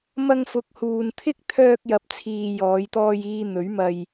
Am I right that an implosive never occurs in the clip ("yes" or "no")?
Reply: yes